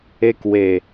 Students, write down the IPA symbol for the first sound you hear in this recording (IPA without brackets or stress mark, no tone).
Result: e